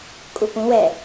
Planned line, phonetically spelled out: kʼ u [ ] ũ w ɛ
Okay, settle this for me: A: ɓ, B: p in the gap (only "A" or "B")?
B